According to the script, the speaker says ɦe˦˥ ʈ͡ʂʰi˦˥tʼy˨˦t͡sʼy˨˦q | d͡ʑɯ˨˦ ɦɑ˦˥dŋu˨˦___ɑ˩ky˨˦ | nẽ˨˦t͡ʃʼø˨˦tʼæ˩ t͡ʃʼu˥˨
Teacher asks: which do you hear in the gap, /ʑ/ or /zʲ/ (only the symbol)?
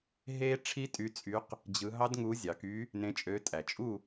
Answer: zʲ